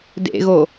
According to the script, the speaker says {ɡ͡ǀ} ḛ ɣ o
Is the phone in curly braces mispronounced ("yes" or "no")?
yes